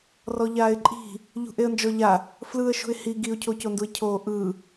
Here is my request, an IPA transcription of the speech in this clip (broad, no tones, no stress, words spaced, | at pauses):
rɔʎaːɪ̯ǃʼi̤ | ʎṳʔeə̯nd͡ʒɔʎa | flɯə̯ʃṳɪ̯ hi ɡiʊ̯cʰoconduɪ̯ cʰoːʔɯ